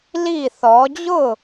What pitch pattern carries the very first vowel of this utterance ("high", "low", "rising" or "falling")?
falling